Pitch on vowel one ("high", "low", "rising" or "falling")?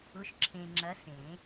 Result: rising